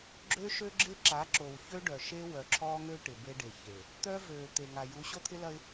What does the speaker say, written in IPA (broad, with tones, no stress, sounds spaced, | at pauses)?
ɡ͡ǁ ø˦ ʃ ø˦ ɡ͡ǁ ɪ˦ ǁ a˨˦ ǁ o˨ w ç ø˦ ɖ œ˨ ʃ e˦ w œ˨ ǁʰ ɔː˦ ŋ ø˦ ʈ ɪ˨ b e˦ ɖ e˨ ç e˨ | t̪ œ˦ v øː˨ t̪ e˨ ŋ a˨ j u˨˦ ɕ o˦ t̪ʰ ɪ˦ l ɐ˦ ɪ̯